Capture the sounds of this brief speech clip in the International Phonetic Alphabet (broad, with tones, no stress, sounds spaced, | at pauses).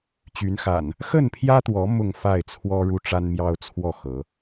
t͡ɕ y˨˦ n x a̰˨˩ n | x ə˥˨ n pʰ j ä˦ t̪ w ɔ˨˦ m ʊ˥˨ ŋ f a˥˨ ɪ̯ t͡sʰ w ɔ˦ ɻ u˦ ʈ͡ʂ a˦ n m j ɑ˦ ʊ̯ t͡sʰ w ɔ˥˨ x ɤ˨˦